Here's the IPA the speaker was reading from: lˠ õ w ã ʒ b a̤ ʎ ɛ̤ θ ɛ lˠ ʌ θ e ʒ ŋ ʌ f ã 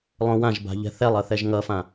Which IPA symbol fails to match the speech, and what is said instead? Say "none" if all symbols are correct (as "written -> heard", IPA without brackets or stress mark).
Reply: e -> ɛ